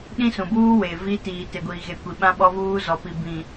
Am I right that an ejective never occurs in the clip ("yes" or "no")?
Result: yes